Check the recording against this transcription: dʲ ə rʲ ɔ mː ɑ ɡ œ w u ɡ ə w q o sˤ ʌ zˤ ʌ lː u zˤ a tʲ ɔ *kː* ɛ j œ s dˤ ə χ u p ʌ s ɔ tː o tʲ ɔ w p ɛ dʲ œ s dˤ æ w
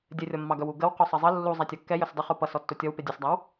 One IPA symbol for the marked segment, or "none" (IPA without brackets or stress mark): kː